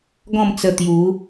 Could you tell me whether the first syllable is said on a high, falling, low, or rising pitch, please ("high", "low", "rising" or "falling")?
falling